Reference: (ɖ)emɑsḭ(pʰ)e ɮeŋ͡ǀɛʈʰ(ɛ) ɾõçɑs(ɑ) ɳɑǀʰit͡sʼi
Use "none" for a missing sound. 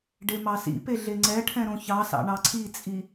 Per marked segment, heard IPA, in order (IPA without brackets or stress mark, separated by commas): ɖ, p, ɛ̃, ɑ̰